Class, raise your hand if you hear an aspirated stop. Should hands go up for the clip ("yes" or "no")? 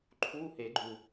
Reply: yes